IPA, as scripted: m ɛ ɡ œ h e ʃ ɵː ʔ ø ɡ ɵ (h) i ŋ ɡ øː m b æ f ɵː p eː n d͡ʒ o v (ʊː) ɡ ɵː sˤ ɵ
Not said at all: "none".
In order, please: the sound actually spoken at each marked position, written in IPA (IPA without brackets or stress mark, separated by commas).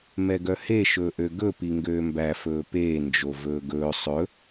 p, ɵː